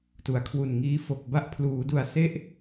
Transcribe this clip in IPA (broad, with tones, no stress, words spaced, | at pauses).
tu˩˦a̯kʰwu˨˩nŋiː˦˥fo˨˩k̚ ba˦˥ʔpʰluː˩˦du˨˩a̯ se˦˥ʔ